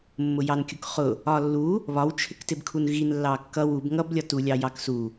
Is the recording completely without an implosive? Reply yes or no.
yes